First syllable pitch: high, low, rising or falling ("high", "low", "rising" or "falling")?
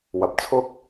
low